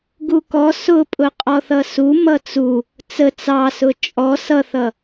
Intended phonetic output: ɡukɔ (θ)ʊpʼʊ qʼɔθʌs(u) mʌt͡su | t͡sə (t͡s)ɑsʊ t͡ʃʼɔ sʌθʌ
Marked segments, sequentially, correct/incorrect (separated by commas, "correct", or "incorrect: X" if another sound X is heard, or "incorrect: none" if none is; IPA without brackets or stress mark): incorrect: s, correct, correct